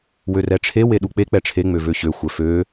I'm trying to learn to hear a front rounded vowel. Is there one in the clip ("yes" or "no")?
yes